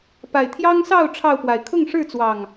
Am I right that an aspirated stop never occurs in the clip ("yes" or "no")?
no